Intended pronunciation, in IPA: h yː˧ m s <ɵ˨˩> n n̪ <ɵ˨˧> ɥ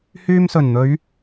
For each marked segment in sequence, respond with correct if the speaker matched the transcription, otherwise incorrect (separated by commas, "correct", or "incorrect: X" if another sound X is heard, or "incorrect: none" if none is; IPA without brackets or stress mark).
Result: correct, correct